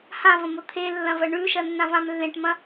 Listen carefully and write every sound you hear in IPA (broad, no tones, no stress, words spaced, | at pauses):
hãvɐ̃mo t̪ʰelːɐ̃vɐ ɳʉʃɐnːãvãm lːẽʈmɐ̃